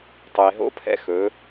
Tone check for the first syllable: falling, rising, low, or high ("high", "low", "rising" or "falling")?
low